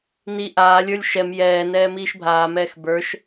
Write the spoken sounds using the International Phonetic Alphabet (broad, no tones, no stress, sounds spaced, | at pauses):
n i ʔ aː lʲ ə˞ lʲ ʃ ɛ m j ɛː n ɛː m iː ʃ bʱ aː m ɛː x b ə˞ ʃ